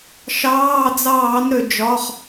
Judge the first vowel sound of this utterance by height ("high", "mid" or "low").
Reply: low